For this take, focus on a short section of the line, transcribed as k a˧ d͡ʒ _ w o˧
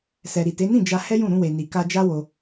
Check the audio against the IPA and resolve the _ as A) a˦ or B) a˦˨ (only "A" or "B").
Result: A